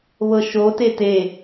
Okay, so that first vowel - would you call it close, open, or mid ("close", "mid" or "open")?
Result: mid